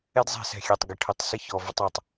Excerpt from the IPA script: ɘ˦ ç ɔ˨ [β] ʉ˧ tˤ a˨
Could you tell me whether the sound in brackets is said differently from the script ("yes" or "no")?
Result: yes